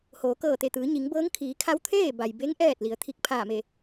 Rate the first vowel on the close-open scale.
mid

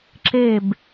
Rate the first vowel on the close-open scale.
mid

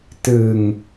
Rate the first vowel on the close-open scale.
close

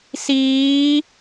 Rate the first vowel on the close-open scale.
close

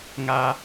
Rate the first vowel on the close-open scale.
open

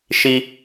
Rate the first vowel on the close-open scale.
close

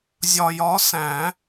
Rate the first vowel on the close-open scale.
open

